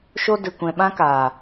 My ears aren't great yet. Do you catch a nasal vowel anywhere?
yes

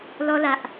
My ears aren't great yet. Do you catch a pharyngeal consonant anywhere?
no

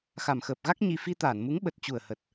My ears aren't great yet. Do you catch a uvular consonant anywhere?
no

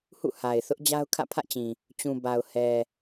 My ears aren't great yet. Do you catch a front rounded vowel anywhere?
no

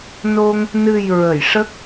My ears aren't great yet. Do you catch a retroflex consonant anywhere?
yes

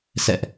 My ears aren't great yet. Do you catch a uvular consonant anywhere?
no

